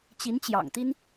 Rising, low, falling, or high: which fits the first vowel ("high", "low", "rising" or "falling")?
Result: rising